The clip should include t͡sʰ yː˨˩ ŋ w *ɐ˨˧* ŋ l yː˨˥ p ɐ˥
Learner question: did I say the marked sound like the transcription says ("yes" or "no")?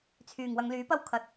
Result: yes